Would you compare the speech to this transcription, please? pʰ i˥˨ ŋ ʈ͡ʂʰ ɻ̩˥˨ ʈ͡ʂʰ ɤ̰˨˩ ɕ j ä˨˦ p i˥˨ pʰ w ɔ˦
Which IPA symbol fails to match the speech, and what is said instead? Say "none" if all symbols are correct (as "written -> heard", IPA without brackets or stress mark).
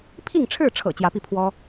ɕ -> t͡ɕ